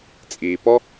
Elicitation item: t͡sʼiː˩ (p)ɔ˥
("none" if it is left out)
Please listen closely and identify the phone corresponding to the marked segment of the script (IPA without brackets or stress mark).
p